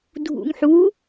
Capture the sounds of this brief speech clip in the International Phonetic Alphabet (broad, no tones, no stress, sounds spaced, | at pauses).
dʱ ṵ ŋ ħ u